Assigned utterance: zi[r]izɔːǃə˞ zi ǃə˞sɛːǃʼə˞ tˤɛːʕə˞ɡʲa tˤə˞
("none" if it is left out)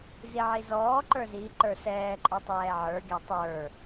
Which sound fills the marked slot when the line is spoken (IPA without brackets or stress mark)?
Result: ʕ